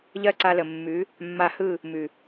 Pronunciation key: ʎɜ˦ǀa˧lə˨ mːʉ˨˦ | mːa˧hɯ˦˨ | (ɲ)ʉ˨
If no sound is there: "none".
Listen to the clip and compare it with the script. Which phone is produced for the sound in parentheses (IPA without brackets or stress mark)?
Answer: m